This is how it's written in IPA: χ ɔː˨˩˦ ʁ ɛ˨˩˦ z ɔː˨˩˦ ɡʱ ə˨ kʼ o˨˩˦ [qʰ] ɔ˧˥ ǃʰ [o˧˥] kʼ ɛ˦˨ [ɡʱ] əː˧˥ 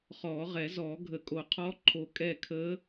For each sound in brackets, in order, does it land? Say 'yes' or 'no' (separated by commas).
yes, no, no